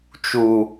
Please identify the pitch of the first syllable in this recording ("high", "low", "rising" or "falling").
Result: low